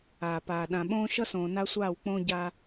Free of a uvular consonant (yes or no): yes